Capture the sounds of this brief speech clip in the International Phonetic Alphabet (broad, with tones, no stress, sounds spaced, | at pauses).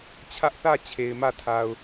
t͡ɕʰ ä˦ ʔ θ ä˦˨ t͡ɕʰ e˨ ɪ̯ m ä˦˨ tʰ a˨ ʊ̯